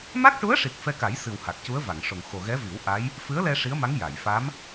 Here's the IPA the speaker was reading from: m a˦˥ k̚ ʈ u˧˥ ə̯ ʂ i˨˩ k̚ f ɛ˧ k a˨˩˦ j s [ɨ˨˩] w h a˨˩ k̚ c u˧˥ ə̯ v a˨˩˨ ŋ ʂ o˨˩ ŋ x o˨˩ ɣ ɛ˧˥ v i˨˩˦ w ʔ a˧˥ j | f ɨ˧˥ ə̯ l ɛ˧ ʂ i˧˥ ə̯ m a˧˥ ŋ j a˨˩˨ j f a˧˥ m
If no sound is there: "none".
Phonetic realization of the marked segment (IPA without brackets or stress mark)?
ɨ˨˩